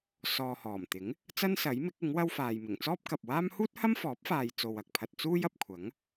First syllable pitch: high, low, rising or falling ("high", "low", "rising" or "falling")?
low